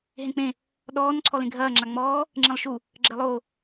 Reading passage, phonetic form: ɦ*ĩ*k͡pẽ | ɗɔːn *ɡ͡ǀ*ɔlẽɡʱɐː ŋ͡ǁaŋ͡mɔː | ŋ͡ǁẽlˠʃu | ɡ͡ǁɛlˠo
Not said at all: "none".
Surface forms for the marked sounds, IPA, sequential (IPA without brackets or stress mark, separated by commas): ẽ, ǀʰ